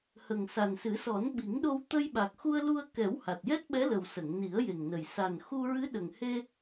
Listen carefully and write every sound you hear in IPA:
hə˨˩ŋsa˨˩nsɨ˨˩˦sɔ˨˩˦n ɓi˨˩˦ŋɗo˧w t̪ə˧jɓa˨˩k̚xu˧ə̯lu˧ə̯ kɛ˨˩˦w ha˨˩t̚jɛ˦˥t̚ɓɛ˧˥lə˨˩w sə˨˩˨ŋni˨˩˦ə̯je˨˩ŋnə˨˩j sa˨˩nxu˧ ɹɨ˧˥ɗə˨˩ŋhe˧

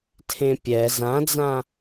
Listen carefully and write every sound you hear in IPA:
tʰẽpʲɛ zãd͡zã

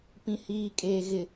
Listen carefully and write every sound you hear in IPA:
pĩ˨hiː˨kʼeː˨ ɣɪ˨

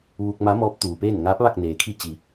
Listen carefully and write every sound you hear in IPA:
ʋuː˧k̚ma˧˥mɔː˧˥p̚ t̪uː˩peː˥˨n ŋaː˧˥p̚ʋa˥˨k̚ neː˩kʰi˥˨ t͡ɕi˩˧

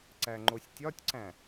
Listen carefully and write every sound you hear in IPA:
ǀæŋ͡ǃosʲtʲɒtʲǀæ̃

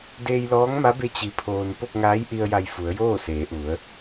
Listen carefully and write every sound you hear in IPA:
deː˧jlɔː˧˥ŋma˧˥be˧˥ t͡ɕi˧˥pʰoː˧n po˥˨k̚ŋaː˧˥jʔi˧ə̯ja˧˩j fu˩˧ə̯joː˥˨seː˩˧ʔu˩˧ə̯

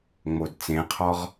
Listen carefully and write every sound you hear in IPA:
ŋ͡modt͡sẽqʰɔʁ

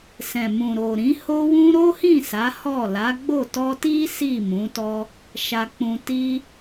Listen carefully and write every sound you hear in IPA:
sɛ̃˨ mũ˨ ɾo˨ɾĩ˨˦ho˦wũ˦ ɾo˦hĩ˦˨ sa˨˦hɔ˦˨ la˨˦ɡ͡bo˦˨ tɔ˧ti˦ si˦˨mũ˨˦tɔ˦ | ʃa˧k͡pũ˧ti˦

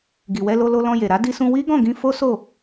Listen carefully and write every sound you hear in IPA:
ɡi˨wɛ˧lo˧lo˧ lɔ̃˧je˨ ɾa˨˦di˧sũ˧ wi˦ɡɔ̃˦˨ɡĩ˧ fo˦so˦˨

